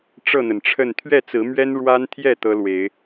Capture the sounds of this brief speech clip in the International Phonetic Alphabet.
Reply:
ʈ͡ʂ ɤ˥˨ n̪ ə˩ n ʈ͡ʂʰ ə˥˨ n t̪ʰ ɥ ɛ˥˨ t͡s ɹ̩˨˦ m ɥ ɛ˦ n ɻ w a˦ n t̪ʰ j ɛ˥˨ t̪ ɤ˦ l w e˨˦ ɪ̯

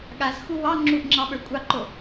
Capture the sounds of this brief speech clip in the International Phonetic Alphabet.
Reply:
ɠ a z x u w ɑ ŋ͡ǁ u ʔ ŋ͡ǁ ɑ ɓ ə˞ kʷʼ ɑ ǃ o

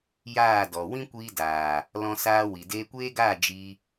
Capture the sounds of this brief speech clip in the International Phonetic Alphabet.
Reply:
j aː˦˨ d ɔ˨ w ĩ˦ kʷ iː˧ d aː˨ | l ɔ̃˦ s aː˦ w i˨ d eː˧ kʷ eː˦ ɡ aː˦˨ d͡ʒ i˧

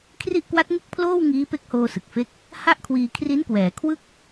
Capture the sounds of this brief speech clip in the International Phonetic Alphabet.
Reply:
kʰ r i˥˩ ʔ k w a˦˥ t̚ ŋ ɯ˥˩ k̚ pʰ l oː˥˩ w ŋ iː˦˥ p e˦˥ k̚ h oː˧ s ɯ˨˩ k̚ f e˦˥ k̚ | h a˥˩ ʔ kʰ w iː˧ kʰ r i˦˥ n k w ɛː˩˦ kʰ w ɯ˥˩ k̚

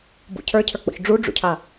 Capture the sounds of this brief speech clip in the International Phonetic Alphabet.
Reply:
b ṵ cʰ ə˞ cʰ ə˞ k͡p ɔ̰ ç ɖ͡ʐ u ɖ͡ʐ ṵ cʰ a

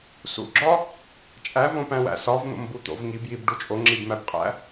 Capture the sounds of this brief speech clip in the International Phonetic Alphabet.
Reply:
s ṵ ɡ͡ǁ ɒ | t͡ʃʼ æ v õ p æ̃ w æ̰ s ɒ v n̪ o̰ m b u t̪ o̰ v ŋ i b j i b ɖ u t͡ʃʼ o ŋ͡ǁ i b m æ b qʼ æ̰

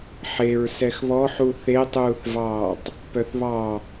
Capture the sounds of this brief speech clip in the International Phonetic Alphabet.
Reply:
ħ e ɹ s ɛ x β ɔ ħ u θ e tˤ uː θ v ɑː tˤ | p œ θ β ɑ

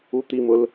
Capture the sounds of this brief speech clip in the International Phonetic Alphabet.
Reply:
u t̪ i m ʊ l

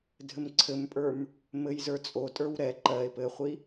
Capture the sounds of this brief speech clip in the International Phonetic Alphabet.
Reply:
dʱ ɘ m ǀʰ ɘ m pʼ ə˞ m | m ɘ j z ə˞ t͡sʼ o tʼ ə˞ w ɾ ɛ ǃ ɜ e̯ p ɘ χʷ i

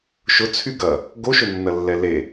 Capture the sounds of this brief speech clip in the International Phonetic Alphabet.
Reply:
ʃ ʊ t͡sʰ y ɡ ɐ | ɡ o ʃ ʊ nː ɐ lː ɛ l e

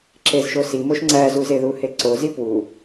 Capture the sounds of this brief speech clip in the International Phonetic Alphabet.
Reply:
ǁ e z ʃ o s i m o ʃ ŋ͡ǀ æ z u z e ð u h e ǀ o z i p w u

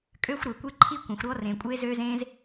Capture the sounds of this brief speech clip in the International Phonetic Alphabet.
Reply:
kʼ ø˥ xʷ ɾ ø˩ kʷ e˥ ǃʰ i˥ kʷ ẽ˩ xʷ ɾ ɔ˥ r ẽ˩ kʷʼ e˥ z ø˥ z ẽ˥ z

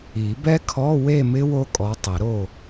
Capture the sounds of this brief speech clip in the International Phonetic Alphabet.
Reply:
i˨˩˦ b ɛ˦˥ kʰ ɔ˧˥˧ w e˥˨ m ɪ˦˥ w o˦˥ kʼ ɔ˨˦ tˤ ɪ˨˩˦ ɾ o˥˨

